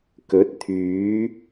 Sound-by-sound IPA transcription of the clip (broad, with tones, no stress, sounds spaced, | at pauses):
k ɵ˨˥ t̚ t̪ʰ yː˨˥